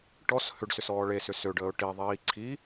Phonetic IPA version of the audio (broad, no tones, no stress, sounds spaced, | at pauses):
ʈ ɔ s h ʏ ɖ s ʏ s ɔː ɭ e s ʏ s ø ɖ əː ʊ̯ ʈ i ðˤ iː ǀʰ i